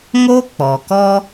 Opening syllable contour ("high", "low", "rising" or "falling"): high